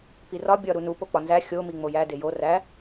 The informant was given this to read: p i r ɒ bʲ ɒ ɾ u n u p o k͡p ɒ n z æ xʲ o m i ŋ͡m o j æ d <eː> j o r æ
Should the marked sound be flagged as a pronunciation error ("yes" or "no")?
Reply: yes